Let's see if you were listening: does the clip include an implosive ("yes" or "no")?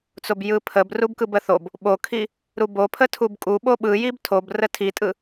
yes